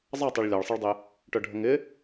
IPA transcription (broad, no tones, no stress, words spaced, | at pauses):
zˤɑtˤɛɭ lʲɑɭsˤɯɭdˤɪ | ʈœɖʱəŋɪ